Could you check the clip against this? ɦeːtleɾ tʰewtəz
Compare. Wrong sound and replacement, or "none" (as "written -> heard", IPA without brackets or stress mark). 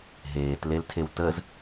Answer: ɾ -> l